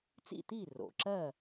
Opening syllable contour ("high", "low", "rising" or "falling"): falling